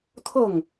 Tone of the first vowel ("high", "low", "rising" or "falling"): falling